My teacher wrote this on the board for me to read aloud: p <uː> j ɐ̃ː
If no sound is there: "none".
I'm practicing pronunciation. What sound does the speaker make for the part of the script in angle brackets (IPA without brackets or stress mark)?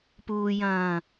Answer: uː